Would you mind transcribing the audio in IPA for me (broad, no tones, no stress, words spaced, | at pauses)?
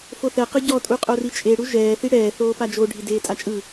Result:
foθɛqɯ ɟɔtʼu qʼorit͡ʃʼeɽu ʒɛː θiɽɛː θoːpad͡ʒo ɖʱideːtʼat͡ʃʼɯ